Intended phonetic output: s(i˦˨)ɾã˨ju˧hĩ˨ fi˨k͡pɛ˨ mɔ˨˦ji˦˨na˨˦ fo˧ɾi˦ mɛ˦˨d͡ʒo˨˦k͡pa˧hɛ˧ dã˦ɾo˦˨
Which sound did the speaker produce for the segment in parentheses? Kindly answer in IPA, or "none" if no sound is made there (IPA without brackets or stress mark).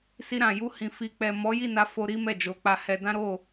i˧